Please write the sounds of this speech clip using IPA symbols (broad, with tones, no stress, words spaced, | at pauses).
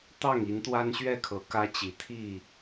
t̪ɑ˥˨ŋ i˨˦nt̪wa˦nɕɥɛ˥˨kʰɤ˨˦ kä˦t͡ɕi˨˦t̪ʰi˥˨